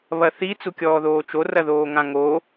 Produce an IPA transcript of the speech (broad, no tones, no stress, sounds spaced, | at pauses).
β ɐ θ i t͡s u kʲ ɔː ð oː t͡ʃ o r ɐ ð oː ŋ ã ŋ o